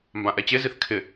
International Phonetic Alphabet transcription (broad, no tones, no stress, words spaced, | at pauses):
mbãʔɛt͡ɕeziθ kʰɪ